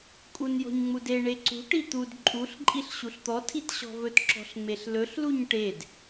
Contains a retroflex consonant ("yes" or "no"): yes